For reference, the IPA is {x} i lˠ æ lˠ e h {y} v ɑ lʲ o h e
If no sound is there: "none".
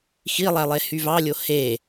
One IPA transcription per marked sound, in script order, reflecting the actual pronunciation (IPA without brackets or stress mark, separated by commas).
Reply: x, y